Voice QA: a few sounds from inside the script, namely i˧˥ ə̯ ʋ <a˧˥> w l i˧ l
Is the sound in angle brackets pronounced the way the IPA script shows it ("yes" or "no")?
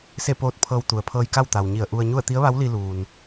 yes